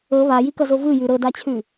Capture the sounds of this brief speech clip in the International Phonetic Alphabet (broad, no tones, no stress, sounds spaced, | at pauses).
ɤ β a j i k ʌ z o v ɯ j ʉ ɾ ɤ d a t͡ɕʰ ʉ